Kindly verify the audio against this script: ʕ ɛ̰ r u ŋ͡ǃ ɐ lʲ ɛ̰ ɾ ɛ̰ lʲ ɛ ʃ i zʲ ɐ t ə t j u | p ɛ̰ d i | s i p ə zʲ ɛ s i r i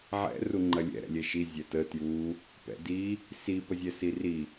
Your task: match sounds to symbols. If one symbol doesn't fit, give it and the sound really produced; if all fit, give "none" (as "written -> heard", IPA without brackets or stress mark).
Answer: none